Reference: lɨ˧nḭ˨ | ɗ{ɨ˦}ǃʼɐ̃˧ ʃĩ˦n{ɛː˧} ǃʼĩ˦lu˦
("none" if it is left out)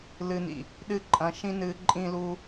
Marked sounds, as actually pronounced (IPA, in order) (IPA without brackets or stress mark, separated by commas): ɨ˦, ɨː˧